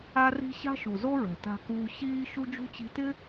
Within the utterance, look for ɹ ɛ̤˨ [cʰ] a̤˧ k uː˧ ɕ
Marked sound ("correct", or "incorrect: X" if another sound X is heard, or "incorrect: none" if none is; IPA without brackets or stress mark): incorrect: t